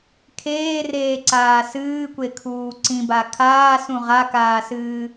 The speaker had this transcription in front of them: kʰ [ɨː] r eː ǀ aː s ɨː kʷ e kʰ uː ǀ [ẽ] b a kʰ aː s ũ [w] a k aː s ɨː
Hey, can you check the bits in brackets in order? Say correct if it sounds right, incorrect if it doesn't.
incorrect, incorrect, incorrect

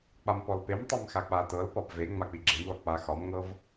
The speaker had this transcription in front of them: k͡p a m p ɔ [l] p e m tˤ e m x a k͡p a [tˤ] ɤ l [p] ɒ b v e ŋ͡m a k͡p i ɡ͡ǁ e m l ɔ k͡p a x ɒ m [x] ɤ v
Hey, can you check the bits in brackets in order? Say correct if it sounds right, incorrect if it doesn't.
correct, incorrect, correct, incorrect

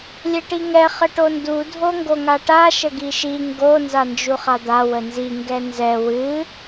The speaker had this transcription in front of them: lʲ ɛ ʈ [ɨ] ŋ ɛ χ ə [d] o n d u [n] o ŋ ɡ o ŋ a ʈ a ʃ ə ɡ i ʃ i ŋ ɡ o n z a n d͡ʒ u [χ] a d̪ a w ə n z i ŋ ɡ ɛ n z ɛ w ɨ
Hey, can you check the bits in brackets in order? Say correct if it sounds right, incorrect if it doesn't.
incorrect, incorrect, incorrect, correct

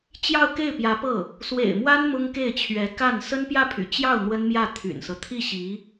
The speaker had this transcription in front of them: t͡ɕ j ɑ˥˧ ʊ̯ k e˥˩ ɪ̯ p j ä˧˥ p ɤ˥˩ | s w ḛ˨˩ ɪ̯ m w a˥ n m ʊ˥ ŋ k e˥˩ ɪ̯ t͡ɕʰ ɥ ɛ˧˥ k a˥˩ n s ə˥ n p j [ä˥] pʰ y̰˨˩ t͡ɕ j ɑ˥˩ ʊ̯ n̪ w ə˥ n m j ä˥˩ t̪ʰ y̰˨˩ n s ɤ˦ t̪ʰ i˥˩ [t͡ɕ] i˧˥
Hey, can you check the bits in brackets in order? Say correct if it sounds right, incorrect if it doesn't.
incorrect, incorrect

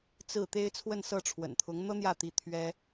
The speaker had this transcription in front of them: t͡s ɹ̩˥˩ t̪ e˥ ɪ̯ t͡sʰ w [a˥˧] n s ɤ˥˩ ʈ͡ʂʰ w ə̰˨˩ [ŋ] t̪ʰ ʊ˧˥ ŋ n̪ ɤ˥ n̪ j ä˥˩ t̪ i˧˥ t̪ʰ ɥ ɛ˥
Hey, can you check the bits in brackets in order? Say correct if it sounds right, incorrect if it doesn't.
incorrect, incorrect

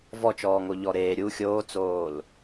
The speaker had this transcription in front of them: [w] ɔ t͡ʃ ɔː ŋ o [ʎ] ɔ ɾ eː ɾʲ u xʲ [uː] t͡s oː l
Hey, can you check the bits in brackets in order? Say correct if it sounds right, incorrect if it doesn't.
incorrect, correct, incorrect

